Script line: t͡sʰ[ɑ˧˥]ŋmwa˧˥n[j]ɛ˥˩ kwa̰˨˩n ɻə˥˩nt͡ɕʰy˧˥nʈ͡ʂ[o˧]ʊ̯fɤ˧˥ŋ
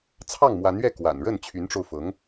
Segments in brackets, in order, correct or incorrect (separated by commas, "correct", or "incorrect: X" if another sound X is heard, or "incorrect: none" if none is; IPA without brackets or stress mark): incorrect: ɑ˥˩, incorrect: ɥ, correct